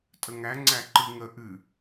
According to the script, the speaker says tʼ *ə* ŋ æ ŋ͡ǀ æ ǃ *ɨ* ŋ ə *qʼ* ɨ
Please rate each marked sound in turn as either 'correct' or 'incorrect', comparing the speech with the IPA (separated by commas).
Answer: correct, correct, incorrect